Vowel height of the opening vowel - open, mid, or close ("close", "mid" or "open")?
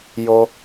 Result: mid